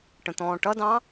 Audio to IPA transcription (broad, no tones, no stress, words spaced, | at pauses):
ʈə̃t̪ɔ̃ːʈʌdɑ̃